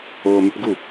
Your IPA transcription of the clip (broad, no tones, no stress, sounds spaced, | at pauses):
oː m y p ɡ u